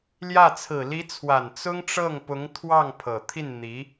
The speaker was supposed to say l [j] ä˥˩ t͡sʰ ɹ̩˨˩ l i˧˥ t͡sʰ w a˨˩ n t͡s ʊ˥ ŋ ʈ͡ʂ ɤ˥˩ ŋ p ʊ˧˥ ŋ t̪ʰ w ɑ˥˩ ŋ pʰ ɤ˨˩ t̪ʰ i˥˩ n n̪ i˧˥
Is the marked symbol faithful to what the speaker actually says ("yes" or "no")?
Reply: yes